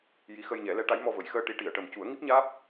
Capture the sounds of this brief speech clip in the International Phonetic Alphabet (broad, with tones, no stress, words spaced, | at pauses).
ji˧˥xə˧jɲɛ˨˩˦ lɛ˧˥ʈa˧˥jmɔ˧ və˨˩˨jxəː˧ ʈi˧˥ʈi˨˩˨ə̯ ʈə˨˩m cu˨˩˦ə̯ŋi˦˥p̚ɲaː˦˥p̚